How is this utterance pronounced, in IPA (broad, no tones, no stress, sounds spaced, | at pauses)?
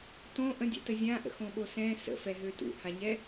t õ ʔ ə̃ dʲ ɛ̰ t ə zʲ ã ʔ ə̰ x õ ɓ o s ɛ̃ s ə̰ f ɛ ɦ ø t ṵ h a ɲ ɛ